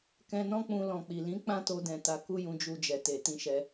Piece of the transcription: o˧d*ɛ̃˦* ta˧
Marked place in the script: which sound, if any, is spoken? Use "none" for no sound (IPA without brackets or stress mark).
ɛ̃˨